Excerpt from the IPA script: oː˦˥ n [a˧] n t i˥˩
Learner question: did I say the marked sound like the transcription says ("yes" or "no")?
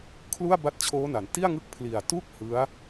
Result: no